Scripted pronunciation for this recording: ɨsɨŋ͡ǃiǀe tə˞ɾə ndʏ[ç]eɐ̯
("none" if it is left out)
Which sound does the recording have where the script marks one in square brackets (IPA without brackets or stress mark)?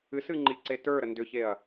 ç